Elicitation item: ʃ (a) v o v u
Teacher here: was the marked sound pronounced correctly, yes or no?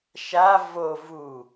yes